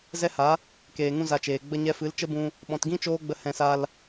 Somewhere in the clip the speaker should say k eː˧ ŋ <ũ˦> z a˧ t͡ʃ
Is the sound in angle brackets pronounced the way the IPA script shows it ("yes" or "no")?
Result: yes